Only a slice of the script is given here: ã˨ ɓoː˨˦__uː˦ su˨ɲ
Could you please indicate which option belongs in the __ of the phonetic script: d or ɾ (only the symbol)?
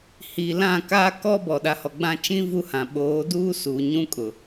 d